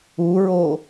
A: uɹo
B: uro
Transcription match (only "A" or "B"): A